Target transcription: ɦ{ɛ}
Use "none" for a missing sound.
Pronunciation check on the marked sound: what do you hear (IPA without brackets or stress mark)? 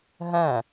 ɛ̃